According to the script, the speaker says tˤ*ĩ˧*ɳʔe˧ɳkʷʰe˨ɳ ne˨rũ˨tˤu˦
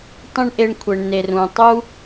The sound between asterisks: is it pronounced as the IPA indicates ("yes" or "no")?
yes